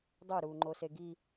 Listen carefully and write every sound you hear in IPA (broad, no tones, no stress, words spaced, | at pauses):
dˤoɾuːŋ͡ǃose ɡi